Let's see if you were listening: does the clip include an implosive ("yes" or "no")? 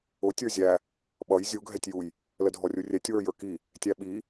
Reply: yes